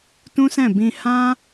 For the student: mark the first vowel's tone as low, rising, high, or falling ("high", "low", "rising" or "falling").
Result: high